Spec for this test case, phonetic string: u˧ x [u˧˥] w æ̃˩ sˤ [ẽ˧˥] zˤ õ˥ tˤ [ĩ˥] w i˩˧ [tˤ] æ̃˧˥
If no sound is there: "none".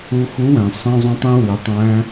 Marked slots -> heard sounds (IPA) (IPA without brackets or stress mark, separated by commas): u˧˥, ẽ˥, ĩ˥, tˤ